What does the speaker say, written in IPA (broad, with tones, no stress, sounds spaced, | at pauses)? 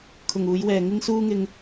kʰ ʊ˨ ŋ uː˨˧ j w ɛː˨ ŋ ɪ˧ ŋ s uː˧ ŋ ɪ˧ ŋ